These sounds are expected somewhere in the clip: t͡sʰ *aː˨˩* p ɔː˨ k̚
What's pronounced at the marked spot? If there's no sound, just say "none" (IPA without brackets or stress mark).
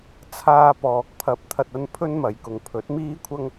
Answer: aː˧